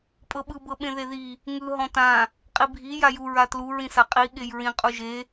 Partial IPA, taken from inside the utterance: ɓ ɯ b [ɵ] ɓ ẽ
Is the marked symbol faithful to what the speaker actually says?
no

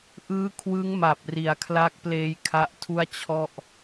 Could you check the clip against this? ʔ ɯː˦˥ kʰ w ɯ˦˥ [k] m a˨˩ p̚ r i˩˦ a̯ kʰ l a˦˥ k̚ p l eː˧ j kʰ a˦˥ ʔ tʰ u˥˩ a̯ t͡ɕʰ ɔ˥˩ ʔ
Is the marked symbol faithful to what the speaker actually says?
no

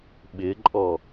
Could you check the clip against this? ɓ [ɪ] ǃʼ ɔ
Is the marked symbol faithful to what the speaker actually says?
yes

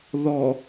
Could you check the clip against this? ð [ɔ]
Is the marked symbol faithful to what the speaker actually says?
yes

